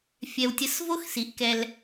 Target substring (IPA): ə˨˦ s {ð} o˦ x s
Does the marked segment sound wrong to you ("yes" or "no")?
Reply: yes